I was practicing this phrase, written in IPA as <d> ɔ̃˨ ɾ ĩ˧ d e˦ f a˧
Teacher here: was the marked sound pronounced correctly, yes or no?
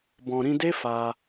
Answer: no